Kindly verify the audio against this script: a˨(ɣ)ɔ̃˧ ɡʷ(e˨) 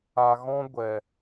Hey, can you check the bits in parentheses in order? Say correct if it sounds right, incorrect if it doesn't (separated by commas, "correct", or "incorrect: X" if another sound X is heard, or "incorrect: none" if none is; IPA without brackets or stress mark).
correct, incorrect: ɛ˨